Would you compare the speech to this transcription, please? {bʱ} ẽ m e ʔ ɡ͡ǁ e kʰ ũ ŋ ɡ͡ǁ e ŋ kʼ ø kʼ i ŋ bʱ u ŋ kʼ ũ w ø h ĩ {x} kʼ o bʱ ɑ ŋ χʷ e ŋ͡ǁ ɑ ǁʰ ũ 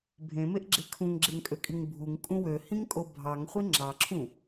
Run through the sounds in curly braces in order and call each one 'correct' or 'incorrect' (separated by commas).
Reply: correct, incorrect